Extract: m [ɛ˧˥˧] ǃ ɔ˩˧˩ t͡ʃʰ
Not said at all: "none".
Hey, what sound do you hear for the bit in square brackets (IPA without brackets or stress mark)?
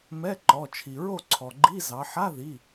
ɛ˧˥˧